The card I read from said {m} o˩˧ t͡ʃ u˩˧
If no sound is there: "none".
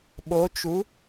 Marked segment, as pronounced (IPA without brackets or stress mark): ɓ